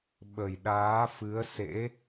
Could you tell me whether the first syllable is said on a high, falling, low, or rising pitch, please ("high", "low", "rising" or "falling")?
low